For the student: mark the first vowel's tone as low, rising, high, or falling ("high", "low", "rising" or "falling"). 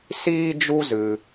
high